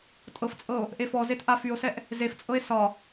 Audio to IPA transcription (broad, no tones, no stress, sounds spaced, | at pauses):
tʼ ɤ f t͡sʼ ɤ o̯ | ʔ e f ɔ z e t ʔ a f y o̯ s ɛ ʔ | z e f t͡sʼ ɤ e̯ s ɒ